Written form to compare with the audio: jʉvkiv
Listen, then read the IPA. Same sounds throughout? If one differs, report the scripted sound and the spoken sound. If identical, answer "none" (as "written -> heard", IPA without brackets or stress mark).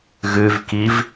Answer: j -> ɣ